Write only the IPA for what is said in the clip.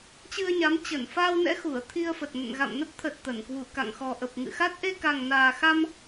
t͡ɕɨ˧ə̯ɲa˨˦m t͡ɕə˧˩nfaː˧wnɛ̰˧˥ xu˧˩ə̯t̪ʰi˧ə̯fə˨˩t̚nə̰˧˨n ɣa̰˧˨mnə˦˥p̚t̪ʰə˨˩t̚ t̪ə˧˩n kwu˧˩ka̰˧˨ŋxɔ˨˩ ʔə˨˩p̚ŋɨ̰˧˨xa˦˥t̚ ʔe˧ka˨˩ŋnaː˨˩xa˧m

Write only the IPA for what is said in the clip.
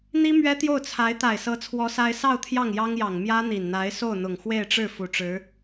n̪i˥ mɥɛ˥t̪jo˥˩ʊ̯t͡sʰa˧˥ɪ̯ t̪a˨˩ɪ̯sɤ˧˥t͡sʰwɔ˧˥ sa˥ɪ̯ sɑ˥˧ʊ̯ t̪ʰjɑ˥˩ŋjɑ˥ŋjɑ˨˩ŋ mjä˥ n̪i˨˩nn̪a˧˥ɪ̯ so˥˩ʊ̯n̪ʊ˨˩ŋ xwe˥˧ɪ̯ʈ͡ʂɻ̩˥˩ fu˧˥ʈ͡ʂɻ̩˧˥

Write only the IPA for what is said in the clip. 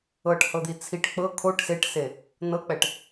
ɤʈhɤd̪i t͡sʰiʈ k͡pɤ kʰoʈ seʈse | nɤk͡pɛʈ

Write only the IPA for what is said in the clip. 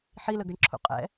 ħiləɡʌɳǁʰṵ qʼɛ̰

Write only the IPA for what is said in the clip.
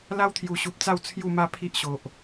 la˦wt̪ʰju˨˩ɕu˨p̚ t͡sa˥˧w t͡sʰju˥˧ma˦ pʰi˦ʔɕo˨ʔ

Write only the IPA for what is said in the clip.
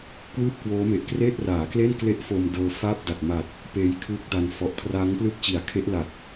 kwɯː˥˩p̚kwoː˦˥me˨˩ʔkreː˥˩t̚ raː˩˦kle˥˩nkle˦˥ʔ fo˧m dɤː˧faː˥˩p̚da˨˩t̚ ma˨˩t̚ | peː˦˥j kʰɯː˦˥k̚da˧n fɔ˨˩ʔkʰraː˦˥ŋplɯ˥˩k̚t͡ɕi˨˩a̯ kʰe˦˥ʔla˨˩t̚

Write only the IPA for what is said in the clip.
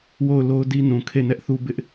wo˦˨ʊ̯lo˦ʊ̯di˦ nũ˨kʰe˦˨nɛ˦ʔθu˦ bɪ˦ʔ

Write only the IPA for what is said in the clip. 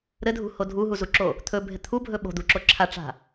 ɾɘdʱṳho dʱuɦuzuǁo | t̪ʰɵbʱɪ t̪ʰubʱɵ ɓo̤d̪uǁo ǁʰaʈ͡ʂa̤

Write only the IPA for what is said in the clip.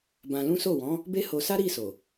bã˧lũ˦ so˦˨wɔ̃˨˦ | be˦ho˧sa˦ ɾi˦˨so˨

